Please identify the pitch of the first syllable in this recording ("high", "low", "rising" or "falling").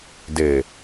low